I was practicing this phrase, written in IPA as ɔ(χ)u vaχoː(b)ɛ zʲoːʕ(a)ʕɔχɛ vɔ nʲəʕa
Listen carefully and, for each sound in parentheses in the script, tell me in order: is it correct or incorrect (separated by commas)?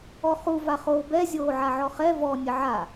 correct, correct, correct